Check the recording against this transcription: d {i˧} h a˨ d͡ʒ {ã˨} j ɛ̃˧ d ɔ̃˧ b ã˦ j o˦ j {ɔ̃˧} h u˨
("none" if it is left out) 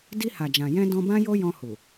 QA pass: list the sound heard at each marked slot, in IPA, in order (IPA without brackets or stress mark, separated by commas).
i˧, ã˨, ɔ̃˧